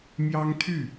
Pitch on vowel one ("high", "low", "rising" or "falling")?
high